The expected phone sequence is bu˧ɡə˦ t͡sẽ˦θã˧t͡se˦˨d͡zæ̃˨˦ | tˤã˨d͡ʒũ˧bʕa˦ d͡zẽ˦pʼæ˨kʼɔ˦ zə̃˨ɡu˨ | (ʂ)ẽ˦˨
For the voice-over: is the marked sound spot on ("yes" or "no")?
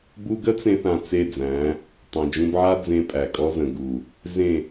no